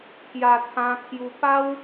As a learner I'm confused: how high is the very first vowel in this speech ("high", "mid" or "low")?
low